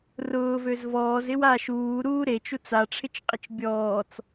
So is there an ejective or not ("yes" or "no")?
yes